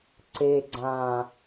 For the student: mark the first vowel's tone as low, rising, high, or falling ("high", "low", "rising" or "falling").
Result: low